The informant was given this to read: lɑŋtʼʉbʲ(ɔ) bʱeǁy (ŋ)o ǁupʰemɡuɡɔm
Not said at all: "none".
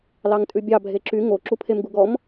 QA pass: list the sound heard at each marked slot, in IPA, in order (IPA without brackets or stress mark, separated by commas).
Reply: ɑ, ŋ